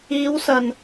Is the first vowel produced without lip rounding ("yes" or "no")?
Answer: yes